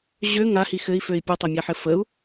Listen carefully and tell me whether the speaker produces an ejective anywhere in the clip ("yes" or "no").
no